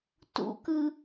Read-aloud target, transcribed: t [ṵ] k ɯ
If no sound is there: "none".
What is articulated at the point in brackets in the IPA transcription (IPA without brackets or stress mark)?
ṵ